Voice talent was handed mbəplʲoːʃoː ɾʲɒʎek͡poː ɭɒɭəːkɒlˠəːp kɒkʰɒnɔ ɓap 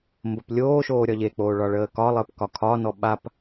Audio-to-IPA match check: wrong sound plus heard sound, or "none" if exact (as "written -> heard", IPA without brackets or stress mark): none